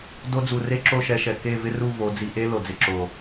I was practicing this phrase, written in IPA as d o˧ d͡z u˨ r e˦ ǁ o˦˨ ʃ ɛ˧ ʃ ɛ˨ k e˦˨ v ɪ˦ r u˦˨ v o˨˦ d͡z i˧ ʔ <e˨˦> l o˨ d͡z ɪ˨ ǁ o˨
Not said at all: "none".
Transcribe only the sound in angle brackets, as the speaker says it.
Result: e˦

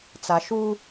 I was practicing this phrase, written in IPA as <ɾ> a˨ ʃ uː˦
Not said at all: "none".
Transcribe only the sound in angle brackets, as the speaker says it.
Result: t͡s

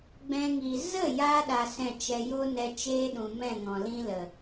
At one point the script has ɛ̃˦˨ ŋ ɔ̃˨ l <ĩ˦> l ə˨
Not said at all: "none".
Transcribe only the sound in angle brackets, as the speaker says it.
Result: ĩ˦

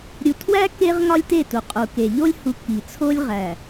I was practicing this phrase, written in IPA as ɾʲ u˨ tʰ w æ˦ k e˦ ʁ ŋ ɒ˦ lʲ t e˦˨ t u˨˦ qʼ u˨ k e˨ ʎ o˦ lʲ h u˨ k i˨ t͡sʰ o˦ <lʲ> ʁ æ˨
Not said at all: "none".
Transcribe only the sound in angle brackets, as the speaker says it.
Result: lʲ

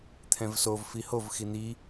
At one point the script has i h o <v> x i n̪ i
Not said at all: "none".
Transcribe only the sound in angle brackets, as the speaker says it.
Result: v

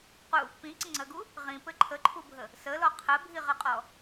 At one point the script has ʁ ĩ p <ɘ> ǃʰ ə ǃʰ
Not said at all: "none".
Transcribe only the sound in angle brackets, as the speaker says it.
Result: ɘ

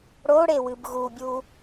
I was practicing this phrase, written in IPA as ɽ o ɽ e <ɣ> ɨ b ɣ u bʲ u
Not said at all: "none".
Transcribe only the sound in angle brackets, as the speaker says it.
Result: w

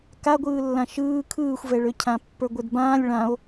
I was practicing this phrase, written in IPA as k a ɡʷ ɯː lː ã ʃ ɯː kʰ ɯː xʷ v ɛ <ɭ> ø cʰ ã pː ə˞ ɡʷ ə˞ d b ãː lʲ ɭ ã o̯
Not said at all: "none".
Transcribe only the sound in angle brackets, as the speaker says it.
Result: ɭ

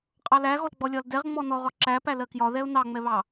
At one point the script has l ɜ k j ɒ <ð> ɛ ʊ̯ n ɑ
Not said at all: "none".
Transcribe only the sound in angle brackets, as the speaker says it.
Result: ð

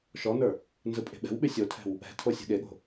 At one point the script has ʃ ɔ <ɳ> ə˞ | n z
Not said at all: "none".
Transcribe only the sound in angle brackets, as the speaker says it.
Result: n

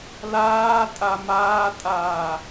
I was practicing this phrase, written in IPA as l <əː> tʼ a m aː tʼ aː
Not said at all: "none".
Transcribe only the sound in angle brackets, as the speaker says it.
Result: aː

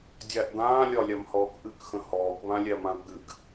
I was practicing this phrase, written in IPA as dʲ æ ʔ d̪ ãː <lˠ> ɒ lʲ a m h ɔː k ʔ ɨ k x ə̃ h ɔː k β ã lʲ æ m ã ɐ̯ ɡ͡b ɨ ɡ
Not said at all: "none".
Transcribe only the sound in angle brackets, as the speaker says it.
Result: lʲ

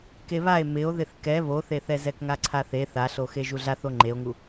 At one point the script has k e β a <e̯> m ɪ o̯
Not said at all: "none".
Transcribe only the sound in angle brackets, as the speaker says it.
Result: e̯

